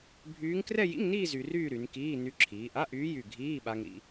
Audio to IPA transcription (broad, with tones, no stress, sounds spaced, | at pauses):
bʱ yː˧˥ ŋ k r ɛ˥˧ j ḭ˧˥˧ ŋ n iː˥˧ z y˧ r yː˥˧ ɾ y˩˧ n k iː˧˥˧ n y˧˥ ǁʰ iː˩˧ ʔ a˧˥˧ ʔ yː˧˥ j y˧˩ ɡʱ iː˧˥˧ ɓ a˧ ŋ ɾ ḭ˧